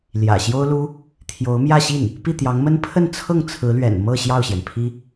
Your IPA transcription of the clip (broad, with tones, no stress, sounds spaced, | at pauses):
l j ä̰˨˩ ɕ j o˥ ʊ̯ l u˥ | t̪ʰ j o˧˥ ʊ̯ m j ä˥˧ ɕ i˥˩ n | p i˥˩ t̪ j ɑ˧˥ ŋ m ə˥ n pʰ ə˥˧ n t͡sʰ ɤ˥˩ ŋ t͡sʰ ɹ̩˧˥ l ɥ ɛ̰˨˩ n m ɤ˥˧ ɕ j ɑ˥˩ ʊ̯ ɕ j ɛ˩ n pʰ i˥